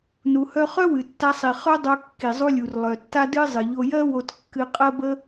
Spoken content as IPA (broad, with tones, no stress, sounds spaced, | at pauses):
n u˩ h œ˧ χ œ˥ w ɨ˩ tː a˧ sˤ i˩ χ œ˥ dˤ o˧ kː i˩ zˤ u˧ lʲ u˩ r lˠ œ˩ tː a˥ d ɨ˥ zˤ ɨ˩ ʎ o˧ j ɜ˥ w o˧ t kː ɨ˧ qʼ ɜ˥ b ə˥